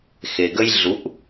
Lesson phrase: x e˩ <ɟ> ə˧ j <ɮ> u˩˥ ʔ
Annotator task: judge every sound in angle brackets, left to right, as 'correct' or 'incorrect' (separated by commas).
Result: incorrect, correct